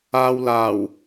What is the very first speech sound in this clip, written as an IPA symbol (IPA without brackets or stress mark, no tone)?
aː